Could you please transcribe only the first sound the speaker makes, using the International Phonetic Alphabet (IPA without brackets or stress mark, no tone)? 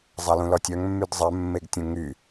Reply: zˤ